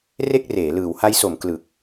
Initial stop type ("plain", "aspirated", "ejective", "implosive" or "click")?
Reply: plain